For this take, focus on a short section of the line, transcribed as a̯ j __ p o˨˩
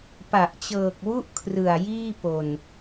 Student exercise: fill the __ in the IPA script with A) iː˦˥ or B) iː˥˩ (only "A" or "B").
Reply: B